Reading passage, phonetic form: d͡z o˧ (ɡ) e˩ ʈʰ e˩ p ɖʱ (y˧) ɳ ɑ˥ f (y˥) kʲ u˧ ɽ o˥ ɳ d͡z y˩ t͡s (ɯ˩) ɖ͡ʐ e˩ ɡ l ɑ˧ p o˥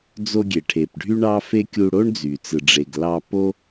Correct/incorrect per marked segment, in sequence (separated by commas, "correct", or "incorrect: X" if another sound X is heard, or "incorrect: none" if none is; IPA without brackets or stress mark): incorrect: ɡʲ, incorrect: y˥, incorrect: e˥, correct